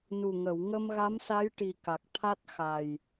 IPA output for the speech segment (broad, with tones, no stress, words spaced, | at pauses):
nu˨˩ŋə˨˩˨w ŋə˧mɣa˧˥msa˧˥jʈi˨˩ ka˨˩k̚t̪ʰa˦˥t̚ xa˨˩j